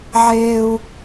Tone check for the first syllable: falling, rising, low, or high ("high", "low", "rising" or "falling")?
high